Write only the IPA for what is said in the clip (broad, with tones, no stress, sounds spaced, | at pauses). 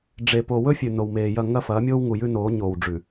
ɖ͡ʐ e˨ p o˨ w ɵ˦ fʲ ʉ˨ n o˨ w m eː˨ j ɐ˦˨ ŋ ɐ˦ f ɐː˨˦ mʲ oː˦ w ŋ u˨ j ʉ˦ n oː˨˦ ɲ oː˨ w ɖ͡ʐ ʉ˨